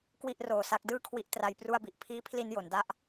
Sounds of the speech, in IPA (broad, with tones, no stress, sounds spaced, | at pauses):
k w i˥˩ ʔ r oː˧ s a˦˥ k̚ d ɯː˥˩ kʰ w i˦˥ ʔ t r a˦˥ j p r u˥˩ a̯ b i˨˩ ʔ pʰ iː˦˥ pʰ l i˧ n j o˩˦ n d a˥˩ ʔ